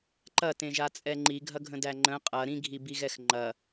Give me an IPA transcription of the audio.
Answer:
ǃ ɐ t ẽ ʒ a t͡sʼ ɛ ŋ͡ǃ i ɡʱ ɐ ɡʱ ə̃ d æ ŋ͡ǃ ə̃ qʼ ɐ ɾ ĩ ɡʱ i b i ɣ ɛ x ŋ͡ǃ ɐ

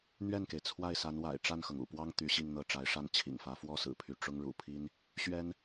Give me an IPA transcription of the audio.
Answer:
n̪ ɥ ɛ˥˩ n k e˩ ɪ̯ t͡sʰ w a˥˩ ɪ̯ s a˧˥ n w a̰˨˩ ɪ̯ ʈ͡ʂ a˥˩ n x ɤ˩ ŋ ṵ˨˩ p w ɑ˥ ŋ t̪ y˧˥ ɕ i˥˧ ŋ n̪ ɤ˥˩ ʈ͡ʂ a˧˥ ɪ̯ ʂ a˥˩ n t͡ɕʰ ḭ˨˩ ŋ f ä˧˥ f w ɔ˥ s ɹ̩˨˩ pʰ y˥˩ ʈ͡ʂ ʊ˥ ŋ ɻ ṵ˨˩ pʰ i˥ n | ɕ ɥ ɛ˥ n

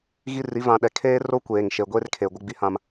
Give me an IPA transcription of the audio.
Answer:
ɣ i˦ r i˨˦ v ã˨ ɗ ɛ˨ kʰ eː˦ r o˦ kʷ eː˨ ŋ ʃ e˨ ɡʷ e˦ r kʰ e˨ ɡʷ ɪ˦ ɡ͡b i˦ h ã˦ m

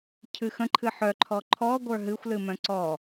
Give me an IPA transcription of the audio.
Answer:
cʰ ɨ x ə̃ ǃʰ ɨ ħ œ ǃʰ ɔ ǃʰ ɔ ɡʷ ə˞ ɦ ɨ xʷ l ɨ m œ̃ ǀ ɔ

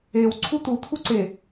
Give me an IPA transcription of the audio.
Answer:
e w ǀʰ u t̪ u t̪ʰ u ǀ e

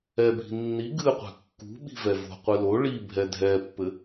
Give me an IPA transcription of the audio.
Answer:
ɛ bʱ i̤ nː i ɡ ɨ qʷ ɛ̤ kː ṳ ɓ i̤ v ɛ v o̤ qʷ ɨ l o ɭ i bʱ ɛ dʱ ɛ pː ɘ

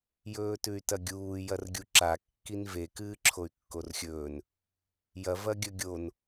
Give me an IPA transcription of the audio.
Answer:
j ɵː t ʉ y̯ t ɐ ɡʲ uː j ɐ r ɡʲ u ǁ a kː i n v e k ɨː ǁʰ o y̯ kː o r xʲ ɵː n | j ɐ v ɐ ɡʲ ɵ ɡʲ o n

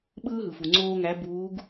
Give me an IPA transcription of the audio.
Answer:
ɓ ɯː˥ ɦ ɯ˩ f u˩ ŋ͡ǀ oː˥ ŋ æ˧˥ b uː˧˥ ɡ

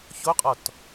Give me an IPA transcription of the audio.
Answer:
ç o qʼ ɔ t

